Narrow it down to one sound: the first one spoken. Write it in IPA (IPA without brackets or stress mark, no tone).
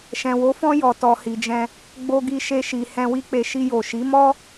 ʃ